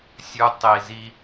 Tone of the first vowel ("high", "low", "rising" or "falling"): low